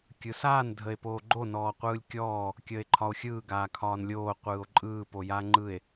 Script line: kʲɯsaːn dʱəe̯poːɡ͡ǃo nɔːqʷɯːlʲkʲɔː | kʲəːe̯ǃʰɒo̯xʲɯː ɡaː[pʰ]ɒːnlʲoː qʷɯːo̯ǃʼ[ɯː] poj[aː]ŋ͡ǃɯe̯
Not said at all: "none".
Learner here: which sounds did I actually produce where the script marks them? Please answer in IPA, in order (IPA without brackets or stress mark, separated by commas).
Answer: kʰ, ɯː, aː